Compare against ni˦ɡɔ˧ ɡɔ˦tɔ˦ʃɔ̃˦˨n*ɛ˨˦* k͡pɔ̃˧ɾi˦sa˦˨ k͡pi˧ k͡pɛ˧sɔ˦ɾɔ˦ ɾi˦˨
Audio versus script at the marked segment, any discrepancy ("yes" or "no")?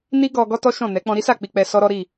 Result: no